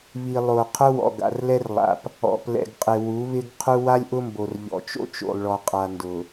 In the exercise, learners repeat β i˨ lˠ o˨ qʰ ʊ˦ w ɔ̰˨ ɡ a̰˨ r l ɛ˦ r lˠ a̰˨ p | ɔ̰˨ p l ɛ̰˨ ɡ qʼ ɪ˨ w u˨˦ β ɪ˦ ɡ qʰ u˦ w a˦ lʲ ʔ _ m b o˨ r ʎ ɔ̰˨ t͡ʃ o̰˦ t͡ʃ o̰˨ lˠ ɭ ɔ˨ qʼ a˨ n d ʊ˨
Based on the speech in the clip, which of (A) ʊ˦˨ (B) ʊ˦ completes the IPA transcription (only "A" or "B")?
B